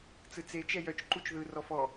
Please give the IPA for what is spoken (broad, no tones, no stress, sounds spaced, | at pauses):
t͡s ɯ t͡s e t͡ʃ ɛ j œ t͡ʃ ǃ u t͡ʃ ð ɯ r ɔ f ɔ